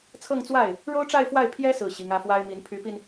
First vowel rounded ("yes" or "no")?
no